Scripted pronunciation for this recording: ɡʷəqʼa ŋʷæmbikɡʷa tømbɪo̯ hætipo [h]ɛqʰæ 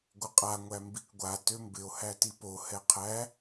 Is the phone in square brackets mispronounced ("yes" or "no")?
no